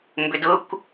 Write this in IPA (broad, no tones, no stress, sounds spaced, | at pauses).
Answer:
m b ʏ d ʊ kʷ